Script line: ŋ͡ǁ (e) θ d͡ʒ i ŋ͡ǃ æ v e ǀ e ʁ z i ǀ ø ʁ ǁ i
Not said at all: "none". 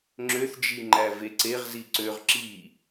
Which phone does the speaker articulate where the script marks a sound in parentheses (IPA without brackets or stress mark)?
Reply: ø